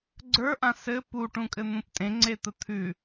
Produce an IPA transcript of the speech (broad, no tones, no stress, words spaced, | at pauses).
ɡ͡ǀə˞ʔã sɘ puʈũkʼɘn̪ũp tʼẽŋ͡ǀet̪ə t̪ʰʉ